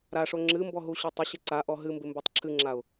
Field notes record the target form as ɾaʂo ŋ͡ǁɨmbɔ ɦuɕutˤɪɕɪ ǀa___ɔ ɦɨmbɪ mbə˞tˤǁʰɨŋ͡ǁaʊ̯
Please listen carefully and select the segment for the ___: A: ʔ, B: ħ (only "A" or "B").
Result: A